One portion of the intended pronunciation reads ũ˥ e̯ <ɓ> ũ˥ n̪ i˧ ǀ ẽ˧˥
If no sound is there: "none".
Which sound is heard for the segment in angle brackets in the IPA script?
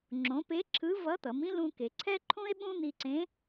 ɓ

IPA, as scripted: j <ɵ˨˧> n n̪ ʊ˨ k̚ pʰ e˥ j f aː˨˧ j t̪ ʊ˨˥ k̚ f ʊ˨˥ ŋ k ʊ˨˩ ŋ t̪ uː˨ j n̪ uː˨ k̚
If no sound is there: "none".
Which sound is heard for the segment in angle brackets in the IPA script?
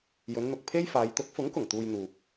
ɵ˨˧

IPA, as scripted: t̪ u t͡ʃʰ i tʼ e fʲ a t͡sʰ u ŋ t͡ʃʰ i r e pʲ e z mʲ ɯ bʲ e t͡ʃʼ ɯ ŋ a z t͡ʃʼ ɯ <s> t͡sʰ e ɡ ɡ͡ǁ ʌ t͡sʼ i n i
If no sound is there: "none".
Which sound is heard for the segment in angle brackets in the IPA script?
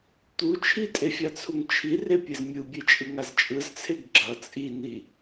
z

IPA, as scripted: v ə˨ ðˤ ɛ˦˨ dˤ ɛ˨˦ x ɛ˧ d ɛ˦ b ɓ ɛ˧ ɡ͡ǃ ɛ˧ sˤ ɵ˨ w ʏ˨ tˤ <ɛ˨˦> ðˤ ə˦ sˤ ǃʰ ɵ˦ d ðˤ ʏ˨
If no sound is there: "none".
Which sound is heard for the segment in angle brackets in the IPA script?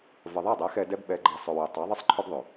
ɛ˨˦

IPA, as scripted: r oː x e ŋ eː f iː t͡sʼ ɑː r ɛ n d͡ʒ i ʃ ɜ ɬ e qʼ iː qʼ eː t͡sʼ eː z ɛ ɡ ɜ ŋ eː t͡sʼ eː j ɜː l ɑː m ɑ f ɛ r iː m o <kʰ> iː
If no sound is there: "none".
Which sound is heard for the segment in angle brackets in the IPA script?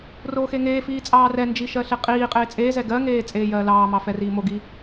ɡ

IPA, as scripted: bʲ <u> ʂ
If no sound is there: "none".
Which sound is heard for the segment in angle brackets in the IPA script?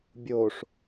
o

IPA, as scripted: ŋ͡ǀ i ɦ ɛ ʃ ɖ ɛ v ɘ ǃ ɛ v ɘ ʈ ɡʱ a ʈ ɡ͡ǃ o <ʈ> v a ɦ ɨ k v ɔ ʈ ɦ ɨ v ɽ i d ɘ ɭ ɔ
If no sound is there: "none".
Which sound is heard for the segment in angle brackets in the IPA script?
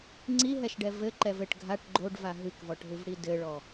ɖ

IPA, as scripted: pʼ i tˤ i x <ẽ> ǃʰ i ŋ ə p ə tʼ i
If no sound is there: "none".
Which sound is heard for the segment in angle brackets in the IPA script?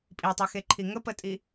e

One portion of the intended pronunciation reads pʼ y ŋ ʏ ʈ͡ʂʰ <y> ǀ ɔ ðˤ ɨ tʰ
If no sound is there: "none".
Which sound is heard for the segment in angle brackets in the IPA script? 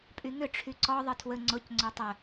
y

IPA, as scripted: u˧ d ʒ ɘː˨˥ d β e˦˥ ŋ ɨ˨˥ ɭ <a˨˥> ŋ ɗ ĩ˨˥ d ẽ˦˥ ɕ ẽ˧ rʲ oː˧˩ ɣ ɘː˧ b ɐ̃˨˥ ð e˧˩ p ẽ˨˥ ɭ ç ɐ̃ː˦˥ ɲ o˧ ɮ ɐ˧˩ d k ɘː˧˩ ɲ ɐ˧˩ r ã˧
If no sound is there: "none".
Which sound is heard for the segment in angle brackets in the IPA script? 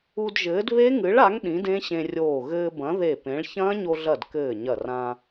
a˨˥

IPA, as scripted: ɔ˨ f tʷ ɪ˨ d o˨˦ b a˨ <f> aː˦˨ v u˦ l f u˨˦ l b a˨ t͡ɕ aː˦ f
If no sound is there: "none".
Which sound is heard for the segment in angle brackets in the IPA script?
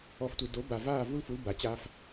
v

